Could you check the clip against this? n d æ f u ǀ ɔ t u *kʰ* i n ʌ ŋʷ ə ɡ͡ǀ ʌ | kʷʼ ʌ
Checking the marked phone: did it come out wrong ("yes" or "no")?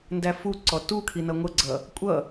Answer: no